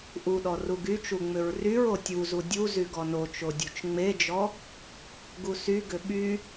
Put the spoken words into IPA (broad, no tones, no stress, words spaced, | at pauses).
ʔuɗɔ ruɡyt͡ʃu ŋ͡mʏɹryɹo tʲuzu dʲu zyɡɔnot͡ʃo dʲut͡ʃŋ͡med͡ʒɔ | ɡusyɡʏ ɓy